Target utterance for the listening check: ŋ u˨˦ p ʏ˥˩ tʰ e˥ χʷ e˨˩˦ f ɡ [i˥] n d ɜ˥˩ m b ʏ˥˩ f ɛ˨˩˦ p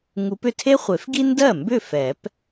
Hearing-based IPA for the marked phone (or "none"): i˥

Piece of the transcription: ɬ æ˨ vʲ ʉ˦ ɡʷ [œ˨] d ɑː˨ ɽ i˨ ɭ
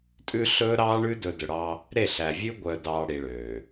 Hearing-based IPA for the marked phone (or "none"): œ˨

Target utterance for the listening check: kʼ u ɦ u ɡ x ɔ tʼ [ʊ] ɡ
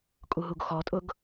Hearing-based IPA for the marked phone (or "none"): ʊ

